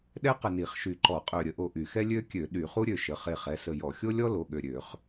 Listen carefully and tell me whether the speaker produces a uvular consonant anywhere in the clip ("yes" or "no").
yes